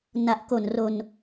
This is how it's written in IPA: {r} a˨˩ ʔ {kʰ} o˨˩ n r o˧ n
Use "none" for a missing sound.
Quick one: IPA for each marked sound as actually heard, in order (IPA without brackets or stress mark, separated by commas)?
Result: n, k